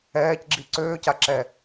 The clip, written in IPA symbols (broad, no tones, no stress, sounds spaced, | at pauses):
ɛː c ɡ͡ǁ i ǀ øː c a ǁ ɛ